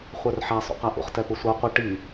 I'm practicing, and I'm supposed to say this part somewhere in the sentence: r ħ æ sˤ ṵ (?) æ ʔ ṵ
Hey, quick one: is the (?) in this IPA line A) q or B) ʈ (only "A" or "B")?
A